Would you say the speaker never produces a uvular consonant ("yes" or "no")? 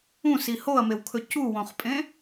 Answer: no